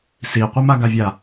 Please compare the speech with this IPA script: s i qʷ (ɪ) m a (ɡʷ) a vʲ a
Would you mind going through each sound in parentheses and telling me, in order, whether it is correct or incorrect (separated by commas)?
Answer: incorrect, incorrect